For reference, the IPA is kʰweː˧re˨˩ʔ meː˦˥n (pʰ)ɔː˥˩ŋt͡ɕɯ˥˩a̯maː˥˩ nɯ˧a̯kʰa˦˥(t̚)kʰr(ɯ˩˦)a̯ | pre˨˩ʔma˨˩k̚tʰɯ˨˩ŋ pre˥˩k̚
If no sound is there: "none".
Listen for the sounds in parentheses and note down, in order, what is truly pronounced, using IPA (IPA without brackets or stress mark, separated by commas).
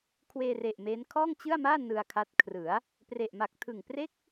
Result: kʰ, t̚, ɯ˩˦